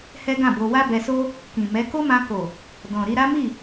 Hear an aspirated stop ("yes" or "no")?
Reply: no